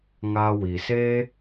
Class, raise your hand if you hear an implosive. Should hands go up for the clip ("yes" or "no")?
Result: no